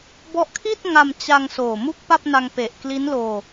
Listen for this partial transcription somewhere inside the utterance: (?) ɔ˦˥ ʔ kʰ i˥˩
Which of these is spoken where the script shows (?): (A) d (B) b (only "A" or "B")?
B